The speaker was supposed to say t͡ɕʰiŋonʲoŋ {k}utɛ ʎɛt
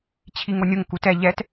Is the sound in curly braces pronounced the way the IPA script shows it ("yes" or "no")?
yes